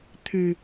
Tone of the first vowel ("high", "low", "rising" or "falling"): low